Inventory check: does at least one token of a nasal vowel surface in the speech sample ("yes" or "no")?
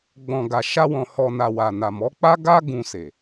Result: yes